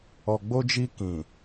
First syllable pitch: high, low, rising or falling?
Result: low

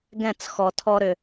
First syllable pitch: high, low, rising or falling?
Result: falling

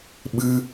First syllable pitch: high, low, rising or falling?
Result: high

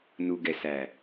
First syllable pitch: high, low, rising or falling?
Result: low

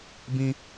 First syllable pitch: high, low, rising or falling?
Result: high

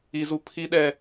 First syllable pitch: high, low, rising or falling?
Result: high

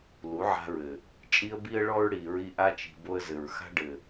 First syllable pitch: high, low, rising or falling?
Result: rising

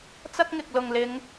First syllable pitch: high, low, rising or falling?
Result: high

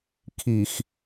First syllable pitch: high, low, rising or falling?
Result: low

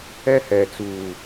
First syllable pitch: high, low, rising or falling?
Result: high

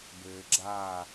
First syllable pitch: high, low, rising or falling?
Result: low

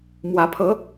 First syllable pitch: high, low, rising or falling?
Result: rising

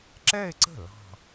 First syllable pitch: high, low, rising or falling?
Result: falling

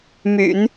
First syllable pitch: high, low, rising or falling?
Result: low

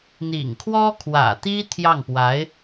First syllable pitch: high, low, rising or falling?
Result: low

